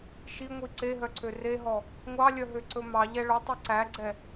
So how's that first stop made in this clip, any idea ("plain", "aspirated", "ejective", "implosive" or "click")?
click